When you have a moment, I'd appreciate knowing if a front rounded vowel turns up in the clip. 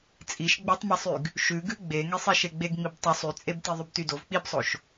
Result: yes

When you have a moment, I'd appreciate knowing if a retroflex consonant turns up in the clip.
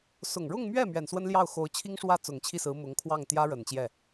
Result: yes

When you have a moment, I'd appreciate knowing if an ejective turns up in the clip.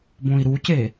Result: no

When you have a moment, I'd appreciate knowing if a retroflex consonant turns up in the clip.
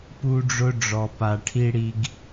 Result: yes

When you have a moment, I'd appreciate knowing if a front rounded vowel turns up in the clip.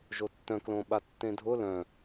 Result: yes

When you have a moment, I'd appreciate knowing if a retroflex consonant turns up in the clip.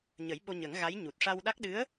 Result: yes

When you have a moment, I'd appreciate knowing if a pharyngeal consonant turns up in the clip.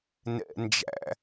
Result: no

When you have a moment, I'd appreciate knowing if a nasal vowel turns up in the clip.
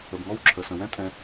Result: yes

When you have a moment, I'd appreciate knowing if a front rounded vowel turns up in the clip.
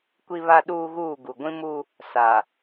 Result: no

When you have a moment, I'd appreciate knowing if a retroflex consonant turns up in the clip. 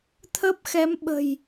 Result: no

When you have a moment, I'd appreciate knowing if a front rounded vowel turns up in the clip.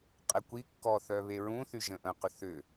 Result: yes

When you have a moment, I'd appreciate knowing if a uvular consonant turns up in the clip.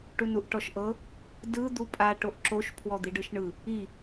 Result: no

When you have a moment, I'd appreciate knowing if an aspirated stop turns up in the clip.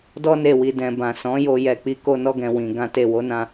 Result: no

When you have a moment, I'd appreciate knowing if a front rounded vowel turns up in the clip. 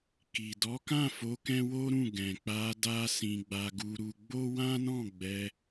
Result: no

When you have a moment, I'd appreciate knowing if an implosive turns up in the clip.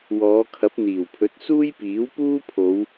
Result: no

